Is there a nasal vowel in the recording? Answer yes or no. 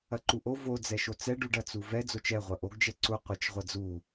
no